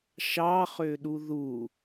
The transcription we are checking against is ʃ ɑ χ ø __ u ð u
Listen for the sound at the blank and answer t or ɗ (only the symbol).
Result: ɗ